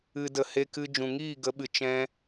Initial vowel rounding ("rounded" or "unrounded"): unrounded